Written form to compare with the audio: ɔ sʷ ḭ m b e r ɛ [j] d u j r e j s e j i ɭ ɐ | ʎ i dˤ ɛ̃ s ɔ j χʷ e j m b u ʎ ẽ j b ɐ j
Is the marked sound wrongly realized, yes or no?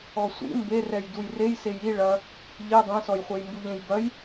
no